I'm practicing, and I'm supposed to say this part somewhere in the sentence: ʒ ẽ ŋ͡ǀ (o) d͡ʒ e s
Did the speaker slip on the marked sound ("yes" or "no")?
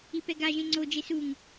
no